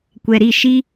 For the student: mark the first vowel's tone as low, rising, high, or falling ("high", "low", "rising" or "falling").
low